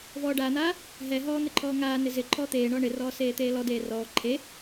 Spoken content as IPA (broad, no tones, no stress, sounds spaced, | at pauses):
v ɔː ɖ aː n̪ aː | ɦ ɛ ɦ ɔː n̪ ɪ ǃʰ ɔː ŋ aː n ɪ z ɪ ǃʰ ɔː t̪ eː ɳ ɔː ɳ ɪ r ɔː s eː t̪ eː l ɔ d eː r ɔː ǃʰ e